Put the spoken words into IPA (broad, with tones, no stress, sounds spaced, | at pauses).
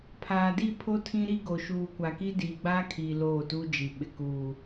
pʰ aː˨ d i˦˨ pʰ o˦ tʰ ĩ˦ ɾ i˦ ɡ o˨ ʃ uː˨ kʷ a˨ k i˦ d iː˨ ɡ͡b aː˦ kʰ iː˨ l oː˦˨ t u˦ d͡ʒ i˨ ɓ ɪ˨ k uː˨